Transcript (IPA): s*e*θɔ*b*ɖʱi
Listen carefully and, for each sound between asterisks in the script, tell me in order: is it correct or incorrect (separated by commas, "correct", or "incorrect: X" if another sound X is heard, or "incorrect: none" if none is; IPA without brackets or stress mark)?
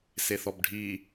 correct, correct